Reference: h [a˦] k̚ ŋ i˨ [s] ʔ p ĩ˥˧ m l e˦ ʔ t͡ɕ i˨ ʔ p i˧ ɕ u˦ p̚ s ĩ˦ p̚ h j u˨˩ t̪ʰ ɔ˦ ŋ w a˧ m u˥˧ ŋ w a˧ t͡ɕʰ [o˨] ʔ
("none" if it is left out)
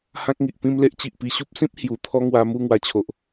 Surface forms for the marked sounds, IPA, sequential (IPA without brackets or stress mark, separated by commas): ã˦, none, o˨